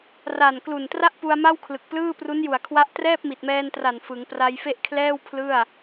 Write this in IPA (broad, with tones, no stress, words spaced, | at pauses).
ra˨˩n klu˨˩ntra˥˩ʔpu˧a̯ ma˥˩wkʰlɯ˨˩k̚plɯː˥˩ pru˦˥nju˨˩a̯kʰwa˦˥ʔ trɛː˥˩p̚mi˨˩t̚mɛː˧ntra˨˩n fɯ˩˦ŋpra˧jfe˥˩ʔ kʰlɛː˥˩wpʰlɯ˥˩a̯